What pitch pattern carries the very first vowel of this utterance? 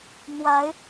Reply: rising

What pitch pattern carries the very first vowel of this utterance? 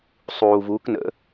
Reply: low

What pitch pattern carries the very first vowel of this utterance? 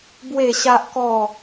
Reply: falling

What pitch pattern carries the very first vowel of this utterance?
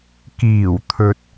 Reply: low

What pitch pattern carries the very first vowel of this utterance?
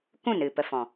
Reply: falling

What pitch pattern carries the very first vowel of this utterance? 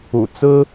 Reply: low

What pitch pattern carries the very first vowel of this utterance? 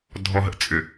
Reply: low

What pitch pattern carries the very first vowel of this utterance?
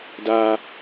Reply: low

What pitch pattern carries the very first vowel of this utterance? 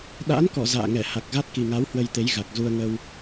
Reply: rising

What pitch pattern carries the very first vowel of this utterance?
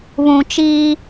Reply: low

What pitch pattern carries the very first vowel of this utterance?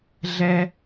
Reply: high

